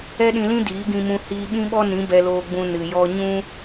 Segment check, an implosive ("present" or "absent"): present